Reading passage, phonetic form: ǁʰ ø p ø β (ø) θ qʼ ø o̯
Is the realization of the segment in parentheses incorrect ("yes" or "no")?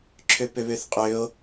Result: no